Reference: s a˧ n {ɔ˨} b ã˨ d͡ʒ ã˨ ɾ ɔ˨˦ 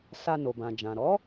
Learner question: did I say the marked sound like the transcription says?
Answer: no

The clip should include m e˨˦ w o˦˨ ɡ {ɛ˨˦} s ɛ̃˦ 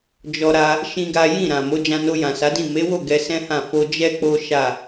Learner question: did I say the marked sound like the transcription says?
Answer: no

